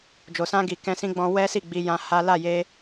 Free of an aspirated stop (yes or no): yes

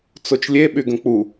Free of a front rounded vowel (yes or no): no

